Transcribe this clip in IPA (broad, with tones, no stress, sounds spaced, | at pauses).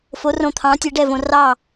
f o˩˧ r õ˨˩ t̪ʰ ɑ̃˩˧ tʲ ɛ˩˧ ɖ ɛ˥˩ v õ˨˩ r ɑ˥˩